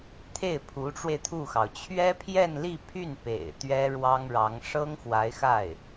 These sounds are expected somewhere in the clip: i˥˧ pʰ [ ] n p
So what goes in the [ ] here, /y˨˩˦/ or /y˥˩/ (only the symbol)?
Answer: y˥˩